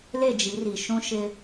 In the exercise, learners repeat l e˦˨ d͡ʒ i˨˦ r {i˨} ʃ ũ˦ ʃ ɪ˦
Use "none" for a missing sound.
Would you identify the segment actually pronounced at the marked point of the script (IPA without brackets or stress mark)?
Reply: i˨